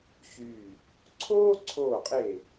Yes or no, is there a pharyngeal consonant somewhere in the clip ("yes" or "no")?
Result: no